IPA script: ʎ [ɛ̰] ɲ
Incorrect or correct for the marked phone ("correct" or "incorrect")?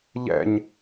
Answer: correct